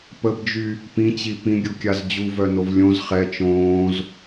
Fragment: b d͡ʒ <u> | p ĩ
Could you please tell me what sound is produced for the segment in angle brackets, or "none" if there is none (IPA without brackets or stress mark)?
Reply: y